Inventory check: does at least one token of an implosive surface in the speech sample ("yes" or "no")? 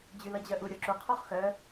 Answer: no